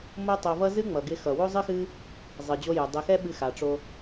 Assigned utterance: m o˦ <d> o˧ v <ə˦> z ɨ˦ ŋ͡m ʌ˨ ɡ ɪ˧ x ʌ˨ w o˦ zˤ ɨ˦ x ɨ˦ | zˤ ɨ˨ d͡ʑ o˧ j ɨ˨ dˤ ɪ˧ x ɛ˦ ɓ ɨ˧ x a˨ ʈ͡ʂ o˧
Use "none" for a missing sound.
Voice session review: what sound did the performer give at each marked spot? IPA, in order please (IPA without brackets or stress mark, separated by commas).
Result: tˤ, ʌ˦